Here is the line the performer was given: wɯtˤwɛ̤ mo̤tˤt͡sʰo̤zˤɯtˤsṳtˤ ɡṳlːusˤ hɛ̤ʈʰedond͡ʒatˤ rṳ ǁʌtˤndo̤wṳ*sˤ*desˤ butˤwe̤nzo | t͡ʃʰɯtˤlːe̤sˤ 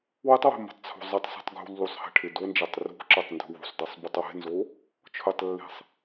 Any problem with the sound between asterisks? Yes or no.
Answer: no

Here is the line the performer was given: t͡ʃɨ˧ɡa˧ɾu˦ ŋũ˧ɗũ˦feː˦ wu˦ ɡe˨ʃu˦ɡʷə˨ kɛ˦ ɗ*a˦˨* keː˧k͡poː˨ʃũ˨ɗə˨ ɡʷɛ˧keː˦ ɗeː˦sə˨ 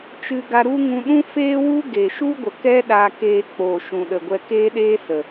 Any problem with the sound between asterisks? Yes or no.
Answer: yes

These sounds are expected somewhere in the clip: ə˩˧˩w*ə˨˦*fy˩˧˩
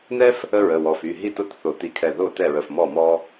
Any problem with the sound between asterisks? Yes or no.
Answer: yes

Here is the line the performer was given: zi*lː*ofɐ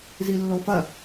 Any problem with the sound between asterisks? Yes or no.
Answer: no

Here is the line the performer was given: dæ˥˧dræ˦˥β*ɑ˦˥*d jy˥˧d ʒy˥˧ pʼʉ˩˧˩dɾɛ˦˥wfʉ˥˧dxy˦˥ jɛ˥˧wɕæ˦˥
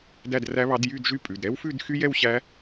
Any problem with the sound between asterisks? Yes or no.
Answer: no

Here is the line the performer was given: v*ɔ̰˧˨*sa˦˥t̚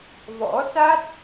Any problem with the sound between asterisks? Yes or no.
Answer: yes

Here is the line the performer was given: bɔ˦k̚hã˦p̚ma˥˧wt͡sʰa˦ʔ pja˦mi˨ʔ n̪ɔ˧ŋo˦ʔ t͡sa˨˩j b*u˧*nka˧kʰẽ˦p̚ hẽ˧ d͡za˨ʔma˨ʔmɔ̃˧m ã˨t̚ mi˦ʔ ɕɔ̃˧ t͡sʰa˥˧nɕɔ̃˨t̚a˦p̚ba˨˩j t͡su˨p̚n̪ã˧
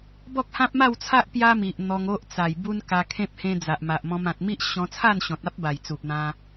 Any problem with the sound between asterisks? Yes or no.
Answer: yes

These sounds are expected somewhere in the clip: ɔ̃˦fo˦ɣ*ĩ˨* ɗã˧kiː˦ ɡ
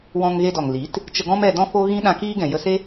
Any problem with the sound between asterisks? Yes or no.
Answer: yes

